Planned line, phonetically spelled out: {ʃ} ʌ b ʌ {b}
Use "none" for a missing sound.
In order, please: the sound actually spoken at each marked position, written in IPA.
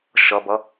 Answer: ʃ, none

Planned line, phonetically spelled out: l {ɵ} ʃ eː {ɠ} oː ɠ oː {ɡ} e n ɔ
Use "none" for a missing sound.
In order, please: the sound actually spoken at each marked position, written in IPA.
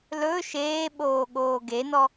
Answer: ɵ, ɓ, ɡ

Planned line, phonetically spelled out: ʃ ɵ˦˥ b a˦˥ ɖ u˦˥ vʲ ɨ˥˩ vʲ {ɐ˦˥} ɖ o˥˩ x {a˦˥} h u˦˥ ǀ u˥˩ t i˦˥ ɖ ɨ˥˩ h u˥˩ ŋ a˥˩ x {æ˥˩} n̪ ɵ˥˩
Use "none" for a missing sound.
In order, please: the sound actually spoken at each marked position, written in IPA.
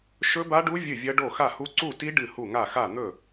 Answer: ɐ˦˥, a˥˩, a˥˩

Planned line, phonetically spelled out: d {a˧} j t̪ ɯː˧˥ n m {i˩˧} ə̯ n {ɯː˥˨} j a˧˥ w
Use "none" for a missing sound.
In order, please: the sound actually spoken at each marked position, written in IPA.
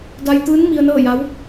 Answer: a˧, i˧, ɤː˥˨

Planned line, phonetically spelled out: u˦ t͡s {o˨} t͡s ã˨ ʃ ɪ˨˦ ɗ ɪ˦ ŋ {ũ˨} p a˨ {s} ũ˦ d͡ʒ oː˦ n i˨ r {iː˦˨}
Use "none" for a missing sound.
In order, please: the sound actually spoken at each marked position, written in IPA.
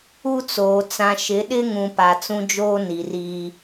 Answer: oː˨, ũ˨, t͡s, iː˦

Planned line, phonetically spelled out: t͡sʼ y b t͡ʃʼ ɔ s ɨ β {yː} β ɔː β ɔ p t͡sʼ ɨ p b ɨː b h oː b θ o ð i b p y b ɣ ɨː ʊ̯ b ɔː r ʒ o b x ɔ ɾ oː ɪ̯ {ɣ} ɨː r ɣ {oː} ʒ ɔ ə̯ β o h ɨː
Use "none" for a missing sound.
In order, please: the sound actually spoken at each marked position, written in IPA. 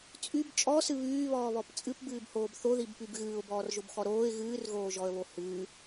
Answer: yː, ɣ, oː

